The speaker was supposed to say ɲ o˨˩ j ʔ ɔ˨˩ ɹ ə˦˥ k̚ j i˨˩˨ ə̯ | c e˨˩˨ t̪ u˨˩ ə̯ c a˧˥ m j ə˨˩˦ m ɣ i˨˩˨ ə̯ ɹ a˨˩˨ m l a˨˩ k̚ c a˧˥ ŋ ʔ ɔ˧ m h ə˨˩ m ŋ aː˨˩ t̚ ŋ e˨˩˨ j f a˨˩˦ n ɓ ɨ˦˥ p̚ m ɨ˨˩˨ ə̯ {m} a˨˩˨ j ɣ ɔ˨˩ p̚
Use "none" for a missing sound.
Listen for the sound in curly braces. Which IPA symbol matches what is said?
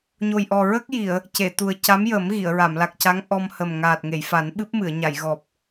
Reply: ɲ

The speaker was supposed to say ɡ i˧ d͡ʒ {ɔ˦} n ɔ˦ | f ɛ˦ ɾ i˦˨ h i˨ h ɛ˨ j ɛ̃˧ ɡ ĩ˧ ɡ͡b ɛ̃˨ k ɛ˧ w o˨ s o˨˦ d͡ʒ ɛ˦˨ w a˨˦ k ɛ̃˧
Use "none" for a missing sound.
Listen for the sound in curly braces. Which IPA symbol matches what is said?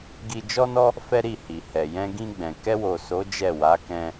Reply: ɔ˦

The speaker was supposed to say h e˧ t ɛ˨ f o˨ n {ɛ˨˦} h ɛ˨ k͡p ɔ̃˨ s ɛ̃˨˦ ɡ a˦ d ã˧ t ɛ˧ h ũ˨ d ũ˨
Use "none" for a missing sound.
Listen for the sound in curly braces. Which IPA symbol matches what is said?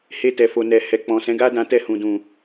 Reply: ɛ˨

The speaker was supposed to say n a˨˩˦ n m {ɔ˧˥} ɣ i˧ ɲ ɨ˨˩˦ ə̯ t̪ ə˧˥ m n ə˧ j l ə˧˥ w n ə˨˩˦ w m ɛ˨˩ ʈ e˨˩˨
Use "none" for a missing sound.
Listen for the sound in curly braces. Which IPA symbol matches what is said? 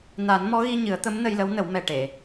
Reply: ɔ˧˥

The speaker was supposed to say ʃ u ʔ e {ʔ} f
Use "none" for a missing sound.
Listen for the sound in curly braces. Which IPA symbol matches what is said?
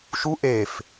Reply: none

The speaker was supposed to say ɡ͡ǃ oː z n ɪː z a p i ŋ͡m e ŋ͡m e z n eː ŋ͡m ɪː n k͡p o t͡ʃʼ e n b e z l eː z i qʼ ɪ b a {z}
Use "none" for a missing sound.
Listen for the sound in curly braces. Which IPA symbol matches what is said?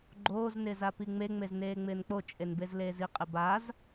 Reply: z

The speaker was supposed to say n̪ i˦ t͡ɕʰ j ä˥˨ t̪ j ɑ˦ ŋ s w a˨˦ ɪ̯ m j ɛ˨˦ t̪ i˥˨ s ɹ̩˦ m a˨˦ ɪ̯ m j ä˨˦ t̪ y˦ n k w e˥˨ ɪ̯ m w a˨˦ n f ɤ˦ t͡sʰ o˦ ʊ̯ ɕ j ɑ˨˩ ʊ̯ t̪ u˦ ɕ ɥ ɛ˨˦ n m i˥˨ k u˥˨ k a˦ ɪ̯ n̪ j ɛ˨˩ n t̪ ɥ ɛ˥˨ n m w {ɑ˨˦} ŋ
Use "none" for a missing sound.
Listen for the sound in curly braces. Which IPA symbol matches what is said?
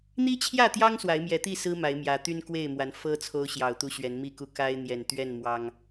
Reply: ɑ˦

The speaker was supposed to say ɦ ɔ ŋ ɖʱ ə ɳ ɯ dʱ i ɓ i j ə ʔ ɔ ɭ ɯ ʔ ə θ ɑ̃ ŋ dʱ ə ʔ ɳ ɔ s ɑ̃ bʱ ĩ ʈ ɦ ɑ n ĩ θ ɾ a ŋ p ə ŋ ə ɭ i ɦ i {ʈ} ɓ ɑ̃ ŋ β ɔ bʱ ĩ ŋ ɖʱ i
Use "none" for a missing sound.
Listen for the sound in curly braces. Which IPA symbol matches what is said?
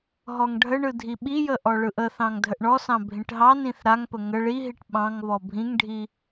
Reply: ʈ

